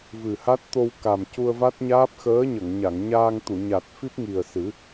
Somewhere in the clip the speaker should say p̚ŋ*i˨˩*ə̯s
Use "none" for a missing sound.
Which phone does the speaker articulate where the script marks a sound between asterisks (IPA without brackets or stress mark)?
i˨˩